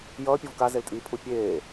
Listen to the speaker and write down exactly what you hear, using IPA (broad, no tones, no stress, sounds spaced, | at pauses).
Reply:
j ʌː pʲ o v k a z e l tʼ iː pʰ u pʲ eː